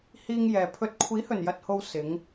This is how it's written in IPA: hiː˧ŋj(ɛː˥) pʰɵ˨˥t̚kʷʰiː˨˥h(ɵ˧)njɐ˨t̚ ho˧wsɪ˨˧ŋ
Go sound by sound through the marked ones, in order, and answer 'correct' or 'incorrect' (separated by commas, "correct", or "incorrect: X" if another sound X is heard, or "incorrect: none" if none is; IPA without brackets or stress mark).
incorrect: ɛː˨, incorrect: ɵ˨˩